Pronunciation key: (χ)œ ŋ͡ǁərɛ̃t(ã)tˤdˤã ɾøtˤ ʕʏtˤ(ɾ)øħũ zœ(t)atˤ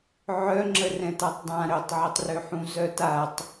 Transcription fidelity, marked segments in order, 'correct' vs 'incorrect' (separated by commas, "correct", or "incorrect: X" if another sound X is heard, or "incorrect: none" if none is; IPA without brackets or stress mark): incorrect: ʕ, incorrect: a, incorrect: r, correct